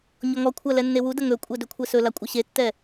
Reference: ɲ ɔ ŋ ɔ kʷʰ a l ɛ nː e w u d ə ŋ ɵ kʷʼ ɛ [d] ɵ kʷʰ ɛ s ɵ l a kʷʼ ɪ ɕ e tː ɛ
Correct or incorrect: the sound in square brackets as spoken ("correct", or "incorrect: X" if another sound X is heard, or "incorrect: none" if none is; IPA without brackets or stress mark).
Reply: correct